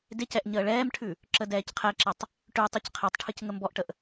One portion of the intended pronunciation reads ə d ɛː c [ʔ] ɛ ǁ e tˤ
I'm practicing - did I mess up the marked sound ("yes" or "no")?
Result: yes